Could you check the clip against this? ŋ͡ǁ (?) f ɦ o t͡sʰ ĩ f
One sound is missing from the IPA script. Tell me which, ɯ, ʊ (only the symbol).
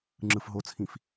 ɯ